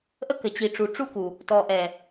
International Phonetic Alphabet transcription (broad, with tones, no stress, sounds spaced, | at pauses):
ʔ ə˦ k ɘ˨ t͡ɕ i˨ ʈ͡ʂ u˨ ʈ͡ʂ u˦ k u˨ | t ɔ˨ ʔ ɛ˨